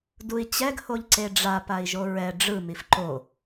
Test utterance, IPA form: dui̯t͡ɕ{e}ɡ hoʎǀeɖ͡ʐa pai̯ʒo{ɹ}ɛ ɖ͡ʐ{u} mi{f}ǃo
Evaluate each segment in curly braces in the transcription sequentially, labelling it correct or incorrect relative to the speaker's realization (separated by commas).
incorrect, correct, incorrect, correct